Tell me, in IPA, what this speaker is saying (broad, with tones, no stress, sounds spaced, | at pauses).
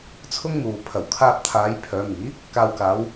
t͡sʰ ʊ˥ ŋ m uː˨ pʰ ɐ˨˩ w kʰ aː˧ p̚ t̪ʰ aː˨˧ j pʰ œː˨˧ m iː˨˥ | k aː˨ w k aː˨˧ w